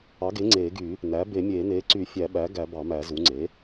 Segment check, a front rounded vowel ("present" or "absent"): present